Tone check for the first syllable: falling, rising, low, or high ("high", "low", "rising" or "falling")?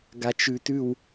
low